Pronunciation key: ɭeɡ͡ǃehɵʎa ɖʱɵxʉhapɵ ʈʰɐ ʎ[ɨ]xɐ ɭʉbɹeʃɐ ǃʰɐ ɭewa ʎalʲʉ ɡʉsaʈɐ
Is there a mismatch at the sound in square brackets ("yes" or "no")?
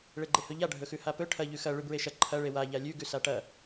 yes